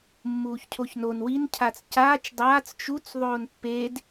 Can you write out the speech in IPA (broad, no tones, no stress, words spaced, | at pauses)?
mːuːçcʰoçnon wincʰat͡s caːt͡ʃ dˤaːt͡s t͡ʃut͡s ðˤoːnpːed